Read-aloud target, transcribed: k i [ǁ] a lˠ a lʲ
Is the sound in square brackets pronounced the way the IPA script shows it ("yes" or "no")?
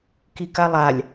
no